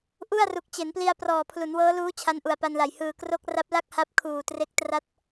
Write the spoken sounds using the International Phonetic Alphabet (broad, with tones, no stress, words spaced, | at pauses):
ʔu˥˩a̯ru˨˩k̚t͡ɕe˩˦npli˧a̯ prɔː˨˩pʰlu˩˦nwɤː˦˥luː˦˥ t͡ɕʰa˦˥nʔu˨˩a̯pa˧nla˨˩j hɯː˨˩kro˦˥k̚ ra˦˥p̚la˥˩k̚ha˦˥p̚ kʰuː˨˩tre˦˥k̚ tra˦˥t̚